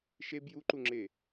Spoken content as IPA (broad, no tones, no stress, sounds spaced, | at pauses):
ʃ e b j u ǃ u ŋ͡ǁ e